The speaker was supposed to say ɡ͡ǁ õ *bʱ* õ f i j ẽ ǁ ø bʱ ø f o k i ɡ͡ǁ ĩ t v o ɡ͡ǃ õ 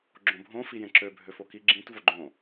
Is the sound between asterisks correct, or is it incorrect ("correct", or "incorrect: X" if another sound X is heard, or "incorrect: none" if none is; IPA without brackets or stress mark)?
correct